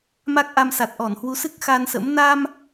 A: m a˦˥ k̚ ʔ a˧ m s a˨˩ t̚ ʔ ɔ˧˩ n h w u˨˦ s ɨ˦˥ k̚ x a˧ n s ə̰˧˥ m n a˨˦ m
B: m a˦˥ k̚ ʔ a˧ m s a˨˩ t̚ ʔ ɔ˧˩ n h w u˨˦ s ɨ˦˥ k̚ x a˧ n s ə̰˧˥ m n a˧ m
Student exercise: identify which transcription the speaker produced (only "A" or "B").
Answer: B